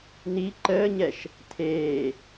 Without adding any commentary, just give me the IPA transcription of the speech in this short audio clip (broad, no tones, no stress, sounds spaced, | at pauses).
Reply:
n i ǃ əː ɲ ɛ ʃ | tʰ eː